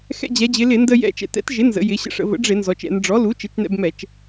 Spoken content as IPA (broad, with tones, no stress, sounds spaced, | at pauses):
x ɛ̰˧ d͡ʑ ɛ˩˧ d͡ʑ ɪ˩˧ l ɪ˧˩˧ n d ə˧ j ɛ̰˧ t͡ʃ ɛ̰˩˧ t ɛ̰˩˥ t ʒ ɪ˩˥ n z ə̰˩˧ j ɪ˩˧ ɕ ə̰˧ ʂ ə̰˩˧ v ə̰˩˥ ɖ͡ʐ ɪ˧˩˧ n z ɔ˩˧ t͡ʃ ɛ̰˩˧ n ɖ͡ʐ ɔ˩˥ l u˩˥ t͡ʃ ɪ˩˥ t͡ʃ n ɛ̰˧ b m ɛ˧˩˧ t͡ʃ